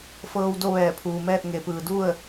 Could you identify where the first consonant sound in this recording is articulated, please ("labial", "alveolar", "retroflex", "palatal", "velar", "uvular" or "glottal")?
labial